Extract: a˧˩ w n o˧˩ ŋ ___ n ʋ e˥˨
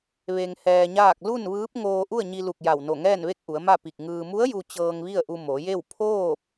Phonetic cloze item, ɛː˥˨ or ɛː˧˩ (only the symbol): ɛː˥˨